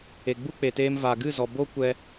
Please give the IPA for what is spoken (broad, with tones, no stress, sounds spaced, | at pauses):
e˨ ɡ͡b u˦ k͡p e˨ t eː˧ m v a˨ ɡ ɨ˦˨ z ɔ˨ b o˦ kʷ ɛ˧